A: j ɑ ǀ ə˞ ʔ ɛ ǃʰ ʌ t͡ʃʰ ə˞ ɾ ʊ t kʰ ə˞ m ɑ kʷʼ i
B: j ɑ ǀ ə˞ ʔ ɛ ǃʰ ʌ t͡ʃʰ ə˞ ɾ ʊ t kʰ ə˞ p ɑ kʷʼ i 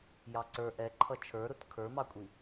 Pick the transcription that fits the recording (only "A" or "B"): A